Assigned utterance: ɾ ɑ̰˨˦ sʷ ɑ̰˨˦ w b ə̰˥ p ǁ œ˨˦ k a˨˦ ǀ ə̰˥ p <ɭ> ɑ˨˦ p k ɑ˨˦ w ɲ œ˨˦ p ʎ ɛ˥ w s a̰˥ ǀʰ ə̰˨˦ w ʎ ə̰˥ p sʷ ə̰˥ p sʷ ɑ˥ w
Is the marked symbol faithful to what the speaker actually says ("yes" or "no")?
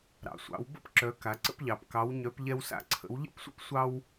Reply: no